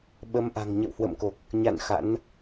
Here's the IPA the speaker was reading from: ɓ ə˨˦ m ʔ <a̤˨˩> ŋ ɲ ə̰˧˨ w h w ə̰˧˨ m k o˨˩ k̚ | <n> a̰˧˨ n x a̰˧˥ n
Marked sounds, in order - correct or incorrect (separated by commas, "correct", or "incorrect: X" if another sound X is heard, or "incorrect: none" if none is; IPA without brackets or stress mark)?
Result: correct, incorrect: ɲ